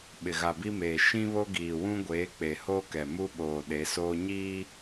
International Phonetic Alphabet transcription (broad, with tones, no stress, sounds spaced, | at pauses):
ɓ ɪ˨ ɣ a˨ b i˦ m eː˨ ʃ ĩ˦ β o˦ ɡ iː˨ w ũ˦ ɡʷ eː˨˦ k͡p e˨ h oː˦ k ɛ˨ m u˦ ɓ oː˨ ɗ e˨˦ s oː˦ ɲ iː˦